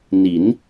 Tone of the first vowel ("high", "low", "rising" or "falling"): rising